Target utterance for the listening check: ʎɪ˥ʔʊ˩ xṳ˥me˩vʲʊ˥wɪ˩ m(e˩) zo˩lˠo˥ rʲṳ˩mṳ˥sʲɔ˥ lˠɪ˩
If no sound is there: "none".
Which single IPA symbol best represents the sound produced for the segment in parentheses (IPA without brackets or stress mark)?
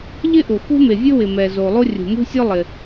ɛ˩